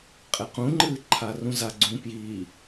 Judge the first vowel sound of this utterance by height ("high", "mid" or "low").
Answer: high